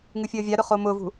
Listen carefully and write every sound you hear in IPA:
ŋɨfʲəːvʲaɾʊ χomʊvṳ

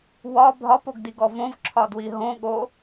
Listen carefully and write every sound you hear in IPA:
wɒ bʱɒpoɡdiɡɔ võvǁʰɒdwi ɦõɠo

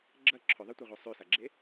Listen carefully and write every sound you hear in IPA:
ɡ͡ǁɐ ǁʰɵðˤɨtʷɐʁʷɐ sˤʉsaɡ͡ǁe

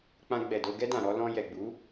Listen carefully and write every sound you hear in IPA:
k͡pã˧ɡ͡bɛ˨do˧ ɡɛ˧dã˨ɾɔ˧ lɔ̃˧ jɛ˨ɡ͡bu˨˦

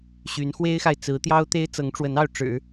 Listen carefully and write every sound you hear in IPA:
ɕy˧˥n xwe˥ɪ̯xa˨ɪ̯ t͡sɹ̩˧˥t̪jɑ˥ʊ̯t̪e˥ɪ̯ t͡sɤ˧˥ŋʈ͡ʂwə˧˥nɑ˥˩ʊ̯ ʈ͡ʂɻ̩˨˩˦

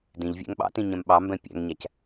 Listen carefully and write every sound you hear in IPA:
dĩʎ vʲæ̰ŋɓɑ̰tĩ ɲɛ̃mɓɑmbɛ̃ pʲæ̰ŋɲæc

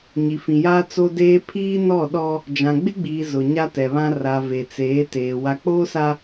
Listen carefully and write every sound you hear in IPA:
ɲi˨fĩ˨jaː˦ t͡so˦deː˦ pʰiː˦nɔ˦˨ ɗɔ˦ | d͡ʒã˨ɡ͡bɪ˦ɡ͡biː˨ zʊ˨ ɲa˦tɛ˨βã˦ ra˨ ve˨t͡seː˨˦teː˨ wa˨k͡poː˦sa˨

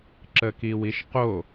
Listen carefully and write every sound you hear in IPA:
ǁəkiwiʃqo

